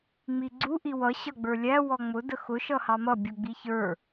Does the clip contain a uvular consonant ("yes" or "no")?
no